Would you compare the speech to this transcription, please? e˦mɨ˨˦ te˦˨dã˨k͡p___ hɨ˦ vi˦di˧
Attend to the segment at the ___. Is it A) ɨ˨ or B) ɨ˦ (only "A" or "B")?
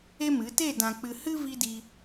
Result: A